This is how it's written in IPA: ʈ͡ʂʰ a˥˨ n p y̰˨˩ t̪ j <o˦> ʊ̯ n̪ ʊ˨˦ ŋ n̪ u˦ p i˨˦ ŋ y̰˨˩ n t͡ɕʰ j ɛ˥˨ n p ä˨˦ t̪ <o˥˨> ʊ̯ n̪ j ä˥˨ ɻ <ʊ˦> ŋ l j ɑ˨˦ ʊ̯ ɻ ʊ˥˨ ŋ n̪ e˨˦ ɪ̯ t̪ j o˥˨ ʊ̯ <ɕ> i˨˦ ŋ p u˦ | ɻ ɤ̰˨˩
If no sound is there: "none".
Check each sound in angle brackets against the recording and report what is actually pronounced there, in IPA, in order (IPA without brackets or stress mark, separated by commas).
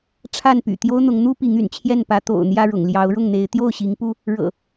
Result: o˦, o̰˨˩, ʊ̰˨˩, ɕ